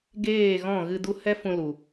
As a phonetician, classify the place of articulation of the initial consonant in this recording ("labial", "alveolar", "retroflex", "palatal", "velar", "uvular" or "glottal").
velar